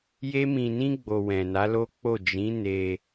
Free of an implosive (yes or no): yes